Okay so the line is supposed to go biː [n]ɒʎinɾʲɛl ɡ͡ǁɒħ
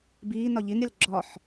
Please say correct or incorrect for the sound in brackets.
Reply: correct